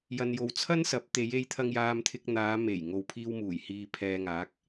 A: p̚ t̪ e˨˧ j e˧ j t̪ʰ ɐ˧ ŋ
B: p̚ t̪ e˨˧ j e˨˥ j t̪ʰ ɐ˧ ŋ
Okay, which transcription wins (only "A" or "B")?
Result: A